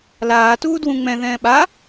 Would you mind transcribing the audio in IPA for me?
laːtuː dwũŋ͡mɛ̃ðɛ̃ː ɓa

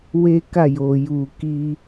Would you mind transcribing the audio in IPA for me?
we˦ka˦˨jo˨ ju˨ki˧

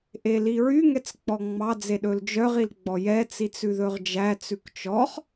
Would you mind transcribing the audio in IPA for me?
ʔeliɹyŋɛt͡s k͡pɔŋ͡mɑd͡ze ɗɵld͡ʒœʁil ɡ͡bɔjɛt͡sit͡s ʉðɵʁd͡ʒæt͡sʉk t͡ʃɔχ

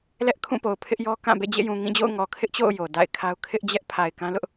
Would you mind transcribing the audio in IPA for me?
lɛ˦ʔkʰũ˦˨po˨ʊ̯ pʰɪ˦ʔjɔ˦ kã˦˨ bḛ˦˨d͡ʑḛ˦˨jũ˨ ŋĩ˦˨d͡ʑo̰˦˨ʊ̯ŋɔ˨ kʰɪ˦ʔt͡ɕo̰˦˨ʊ̯ jo˨ da̰˦˨ɪ̯kʰa˦ʊ̯ kʰɪ˦ʔd͡ʑɛ˦ʔ pʰa˨ɪ̯kã˦lʊ˦ʔ

